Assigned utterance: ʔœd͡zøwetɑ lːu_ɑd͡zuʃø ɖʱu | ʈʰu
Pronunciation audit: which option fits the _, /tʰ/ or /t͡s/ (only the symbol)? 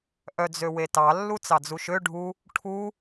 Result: t͡s